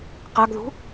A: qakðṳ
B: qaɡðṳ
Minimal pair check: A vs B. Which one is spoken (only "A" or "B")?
B